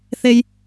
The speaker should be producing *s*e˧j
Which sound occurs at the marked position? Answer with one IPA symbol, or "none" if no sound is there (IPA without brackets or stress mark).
θ